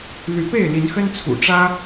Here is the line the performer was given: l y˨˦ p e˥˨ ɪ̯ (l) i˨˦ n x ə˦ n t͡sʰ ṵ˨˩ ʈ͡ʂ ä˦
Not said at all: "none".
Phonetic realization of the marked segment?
l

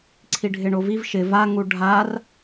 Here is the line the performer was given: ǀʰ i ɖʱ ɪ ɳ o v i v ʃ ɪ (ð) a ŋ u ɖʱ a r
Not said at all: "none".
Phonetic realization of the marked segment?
v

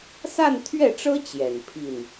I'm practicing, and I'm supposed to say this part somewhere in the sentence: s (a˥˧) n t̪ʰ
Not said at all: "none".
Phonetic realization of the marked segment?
a˥˧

